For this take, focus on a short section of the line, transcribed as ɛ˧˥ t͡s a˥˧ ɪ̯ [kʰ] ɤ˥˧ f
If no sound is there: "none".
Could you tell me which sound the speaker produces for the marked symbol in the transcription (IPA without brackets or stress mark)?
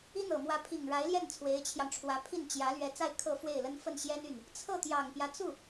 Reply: kʰ